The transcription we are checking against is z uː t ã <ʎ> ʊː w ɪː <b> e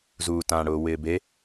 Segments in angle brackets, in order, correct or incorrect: incorrect: ɽ, correct

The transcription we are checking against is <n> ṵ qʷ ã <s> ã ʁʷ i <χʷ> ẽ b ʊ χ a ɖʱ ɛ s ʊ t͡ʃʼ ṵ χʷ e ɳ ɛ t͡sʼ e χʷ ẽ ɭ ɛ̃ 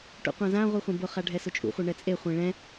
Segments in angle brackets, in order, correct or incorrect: incorrect: ʈ, incorrect: z, correct

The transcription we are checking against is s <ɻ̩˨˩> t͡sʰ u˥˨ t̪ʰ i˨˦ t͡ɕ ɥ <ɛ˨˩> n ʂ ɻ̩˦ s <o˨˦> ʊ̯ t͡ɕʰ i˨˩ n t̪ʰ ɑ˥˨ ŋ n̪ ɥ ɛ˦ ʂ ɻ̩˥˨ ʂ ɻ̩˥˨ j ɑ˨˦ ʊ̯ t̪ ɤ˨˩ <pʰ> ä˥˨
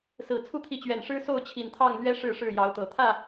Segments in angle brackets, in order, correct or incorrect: incorrect: ɹ̩˨˩, correct, incorrect: o˥˨, incorrect: t̪ʰ

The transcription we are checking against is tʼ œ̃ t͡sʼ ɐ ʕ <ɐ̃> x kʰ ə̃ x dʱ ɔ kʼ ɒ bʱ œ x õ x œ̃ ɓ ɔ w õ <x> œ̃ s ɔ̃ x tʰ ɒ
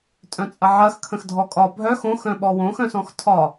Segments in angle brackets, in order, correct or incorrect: incorrect: ɐ, correct

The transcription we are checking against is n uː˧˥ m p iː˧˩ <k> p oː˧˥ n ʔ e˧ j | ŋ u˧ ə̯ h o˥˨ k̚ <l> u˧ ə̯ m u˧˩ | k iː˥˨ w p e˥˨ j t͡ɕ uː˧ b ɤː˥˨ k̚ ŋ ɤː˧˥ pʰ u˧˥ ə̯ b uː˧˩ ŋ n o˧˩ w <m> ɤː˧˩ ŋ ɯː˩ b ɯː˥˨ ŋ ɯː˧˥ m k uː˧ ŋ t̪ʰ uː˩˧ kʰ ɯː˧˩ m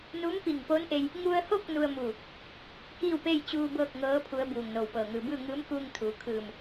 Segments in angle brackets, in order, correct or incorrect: incorrect: ŋ, incorrect: n, incorrect: p

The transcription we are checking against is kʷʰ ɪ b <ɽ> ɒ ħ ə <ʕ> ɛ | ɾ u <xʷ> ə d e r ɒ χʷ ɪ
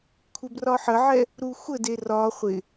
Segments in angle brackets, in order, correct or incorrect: incorrect: r, correct, correct

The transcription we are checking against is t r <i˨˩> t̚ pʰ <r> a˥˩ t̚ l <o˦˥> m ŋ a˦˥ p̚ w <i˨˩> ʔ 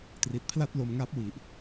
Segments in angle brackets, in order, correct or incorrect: correct, incorrect: l, incorrect: o˧, correct

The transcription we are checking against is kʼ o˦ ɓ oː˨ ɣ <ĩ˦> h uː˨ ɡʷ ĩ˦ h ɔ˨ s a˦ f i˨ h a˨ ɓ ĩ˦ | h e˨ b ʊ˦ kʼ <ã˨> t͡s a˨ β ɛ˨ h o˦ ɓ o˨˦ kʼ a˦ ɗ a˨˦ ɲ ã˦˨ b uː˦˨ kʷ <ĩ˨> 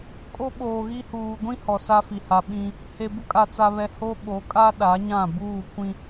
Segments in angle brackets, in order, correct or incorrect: incorrect: i˦, incorrect: a˨, incorrect: ĩ˦

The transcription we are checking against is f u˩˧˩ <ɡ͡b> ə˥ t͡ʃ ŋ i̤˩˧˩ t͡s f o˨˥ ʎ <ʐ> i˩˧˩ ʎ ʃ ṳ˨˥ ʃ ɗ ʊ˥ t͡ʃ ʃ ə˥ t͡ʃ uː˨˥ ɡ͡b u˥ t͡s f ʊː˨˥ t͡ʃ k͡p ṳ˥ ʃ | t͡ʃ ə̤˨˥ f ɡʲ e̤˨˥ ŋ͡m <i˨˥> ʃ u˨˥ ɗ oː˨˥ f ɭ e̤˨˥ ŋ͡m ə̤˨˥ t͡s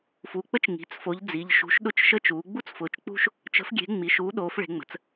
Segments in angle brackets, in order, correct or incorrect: incorrect: k͡p, incorrect: d͡z, incorrect: i˩˧˩

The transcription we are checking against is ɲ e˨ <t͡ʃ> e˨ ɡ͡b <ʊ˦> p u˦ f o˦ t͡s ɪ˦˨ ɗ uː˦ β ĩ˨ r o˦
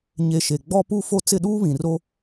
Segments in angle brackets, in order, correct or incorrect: incorrect: ʃ, incorrect: ɔ˦

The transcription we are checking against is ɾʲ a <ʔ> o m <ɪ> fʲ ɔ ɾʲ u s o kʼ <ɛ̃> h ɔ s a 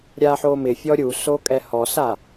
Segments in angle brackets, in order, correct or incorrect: incorrect: ħ, correct, incorrect: ɛ

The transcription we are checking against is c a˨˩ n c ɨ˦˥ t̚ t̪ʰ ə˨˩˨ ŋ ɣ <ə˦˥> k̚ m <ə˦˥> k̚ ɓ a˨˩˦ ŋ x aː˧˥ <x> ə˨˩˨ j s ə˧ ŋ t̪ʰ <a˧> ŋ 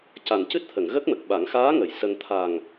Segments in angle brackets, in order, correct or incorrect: correct, incorrect: ə˨˩, incorrect: ŋ, incorrect: a˨˩

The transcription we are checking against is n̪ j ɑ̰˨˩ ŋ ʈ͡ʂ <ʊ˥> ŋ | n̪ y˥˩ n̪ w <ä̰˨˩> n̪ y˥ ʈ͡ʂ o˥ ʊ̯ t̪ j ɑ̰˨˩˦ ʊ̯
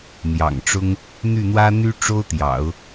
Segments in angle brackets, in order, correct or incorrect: correct, incorrect: ä˥

